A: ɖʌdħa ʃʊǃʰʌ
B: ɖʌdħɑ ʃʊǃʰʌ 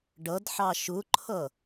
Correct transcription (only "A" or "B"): B